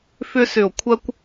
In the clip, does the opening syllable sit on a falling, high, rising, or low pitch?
high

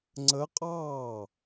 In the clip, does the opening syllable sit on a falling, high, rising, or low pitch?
rising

